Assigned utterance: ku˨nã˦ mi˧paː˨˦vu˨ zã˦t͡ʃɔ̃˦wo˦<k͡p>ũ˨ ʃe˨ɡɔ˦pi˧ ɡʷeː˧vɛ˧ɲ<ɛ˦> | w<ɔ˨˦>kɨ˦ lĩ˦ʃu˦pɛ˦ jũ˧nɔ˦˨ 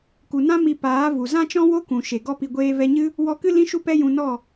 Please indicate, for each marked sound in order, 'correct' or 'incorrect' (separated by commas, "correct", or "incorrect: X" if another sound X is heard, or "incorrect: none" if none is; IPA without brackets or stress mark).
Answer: incorrect: k, incorrect: ɨ˦, incorrect: ɔ˧